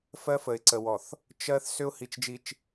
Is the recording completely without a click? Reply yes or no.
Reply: no